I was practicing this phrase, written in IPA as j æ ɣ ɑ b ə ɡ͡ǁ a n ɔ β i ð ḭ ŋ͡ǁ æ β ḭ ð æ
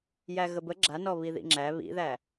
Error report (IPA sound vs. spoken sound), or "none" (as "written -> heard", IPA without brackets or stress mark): ɑ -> ə